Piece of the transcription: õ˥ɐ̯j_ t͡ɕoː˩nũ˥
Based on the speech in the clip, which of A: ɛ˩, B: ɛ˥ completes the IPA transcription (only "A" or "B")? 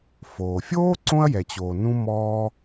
A